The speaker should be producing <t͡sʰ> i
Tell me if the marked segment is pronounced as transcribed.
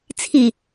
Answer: yes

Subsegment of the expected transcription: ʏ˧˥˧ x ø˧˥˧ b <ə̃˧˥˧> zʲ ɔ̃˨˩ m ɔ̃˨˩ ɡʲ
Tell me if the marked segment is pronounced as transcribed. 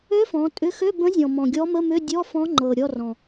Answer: no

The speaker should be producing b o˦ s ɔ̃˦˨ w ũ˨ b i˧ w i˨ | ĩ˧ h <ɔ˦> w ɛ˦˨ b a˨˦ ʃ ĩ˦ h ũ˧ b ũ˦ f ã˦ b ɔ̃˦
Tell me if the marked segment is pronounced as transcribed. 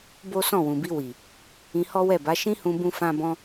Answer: yes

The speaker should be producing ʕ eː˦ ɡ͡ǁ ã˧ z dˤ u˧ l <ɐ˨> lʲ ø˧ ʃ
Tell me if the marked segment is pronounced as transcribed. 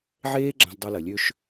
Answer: yes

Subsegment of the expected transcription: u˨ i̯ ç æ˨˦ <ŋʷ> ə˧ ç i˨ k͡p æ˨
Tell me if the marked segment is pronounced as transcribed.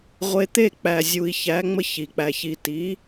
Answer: no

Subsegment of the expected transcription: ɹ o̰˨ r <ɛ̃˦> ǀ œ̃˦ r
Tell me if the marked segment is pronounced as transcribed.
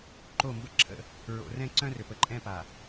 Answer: yes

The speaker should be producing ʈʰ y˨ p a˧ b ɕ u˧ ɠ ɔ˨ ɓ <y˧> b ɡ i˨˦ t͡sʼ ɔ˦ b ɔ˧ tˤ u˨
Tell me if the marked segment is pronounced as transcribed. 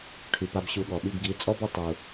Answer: no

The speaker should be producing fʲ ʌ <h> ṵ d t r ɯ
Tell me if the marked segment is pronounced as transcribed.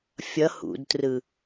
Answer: yes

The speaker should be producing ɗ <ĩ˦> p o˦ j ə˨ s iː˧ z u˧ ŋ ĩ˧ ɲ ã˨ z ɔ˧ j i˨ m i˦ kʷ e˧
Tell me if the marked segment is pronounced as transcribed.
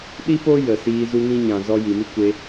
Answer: no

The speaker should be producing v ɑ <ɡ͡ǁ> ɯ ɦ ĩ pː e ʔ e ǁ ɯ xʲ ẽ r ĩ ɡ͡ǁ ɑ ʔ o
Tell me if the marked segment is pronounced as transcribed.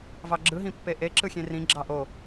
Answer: yes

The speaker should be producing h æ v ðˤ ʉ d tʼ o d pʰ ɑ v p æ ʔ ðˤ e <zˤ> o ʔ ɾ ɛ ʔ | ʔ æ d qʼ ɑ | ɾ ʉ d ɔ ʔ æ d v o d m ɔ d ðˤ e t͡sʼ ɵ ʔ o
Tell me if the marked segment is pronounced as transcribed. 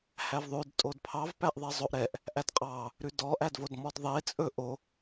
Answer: yes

